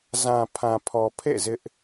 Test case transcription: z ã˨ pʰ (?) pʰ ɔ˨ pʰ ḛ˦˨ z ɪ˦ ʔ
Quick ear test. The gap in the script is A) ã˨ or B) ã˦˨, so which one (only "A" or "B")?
A